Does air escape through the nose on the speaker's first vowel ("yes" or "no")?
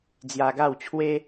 no